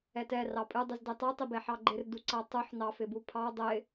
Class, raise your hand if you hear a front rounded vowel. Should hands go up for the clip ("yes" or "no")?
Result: no